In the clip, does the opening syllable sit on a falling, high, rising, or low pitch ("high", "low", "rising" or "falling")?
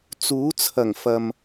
rising